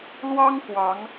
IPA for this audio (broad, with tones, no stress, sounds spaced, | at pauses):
l w ɑ˥ ŋ k w ɑ˧˥ ŋ